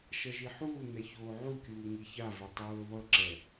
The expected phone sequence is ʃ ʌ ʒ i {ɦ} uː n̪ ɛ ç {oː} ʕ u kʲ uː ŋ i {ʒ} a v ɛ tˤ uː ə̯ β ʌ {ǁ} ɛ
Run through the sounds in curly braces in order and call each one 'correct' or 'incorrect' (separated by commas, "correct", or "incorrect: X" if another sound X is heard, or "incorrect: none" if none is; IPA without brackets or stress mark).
incorrect: ħ, correct, incorrect: ç, correct